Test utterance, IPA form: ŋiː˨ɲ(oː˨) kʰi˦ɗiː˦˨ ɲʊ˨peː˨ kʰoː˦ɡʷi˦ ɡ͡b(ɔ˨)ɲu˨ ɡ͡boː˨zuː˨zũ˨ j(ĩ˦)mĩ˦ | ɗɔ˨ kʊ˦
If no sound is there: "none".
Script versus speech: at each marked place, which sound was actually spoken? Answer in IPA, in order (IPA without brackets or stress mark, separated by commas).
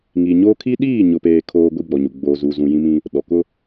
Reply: oː˦, ɔ˨, ĩ˦